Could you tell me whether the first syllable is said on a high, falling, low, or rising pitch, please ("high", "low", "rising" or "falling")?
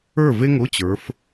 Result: falling